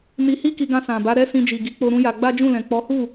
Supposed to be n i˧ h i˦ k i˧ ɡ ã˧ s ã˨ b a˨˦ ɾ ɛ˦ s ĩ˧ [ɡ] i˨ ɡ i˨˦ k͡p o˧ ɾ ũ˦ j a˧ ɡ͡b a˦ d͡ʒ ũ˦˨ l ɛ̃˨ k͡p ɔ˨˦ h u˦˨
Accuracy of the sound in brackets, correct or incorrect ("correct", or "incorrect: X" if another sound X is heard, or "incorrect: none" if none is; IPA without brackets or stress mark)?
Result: incorrect: d͡ʒ